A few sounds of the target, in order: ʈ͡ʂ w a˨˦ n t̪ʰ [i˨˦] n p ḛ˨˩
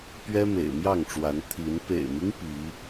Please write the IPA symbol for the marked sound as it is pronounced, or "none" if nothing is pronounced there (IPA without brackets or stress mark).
i˨˦